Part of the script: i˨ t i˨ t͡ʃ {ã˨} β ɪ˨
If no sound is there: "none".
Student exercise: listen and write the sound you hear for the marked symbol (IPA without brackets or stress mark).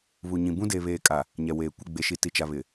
a˨